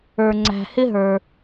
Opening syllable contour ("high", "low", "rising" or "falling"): low